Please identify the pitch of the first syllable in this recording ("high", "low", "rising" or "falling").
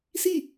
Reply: falling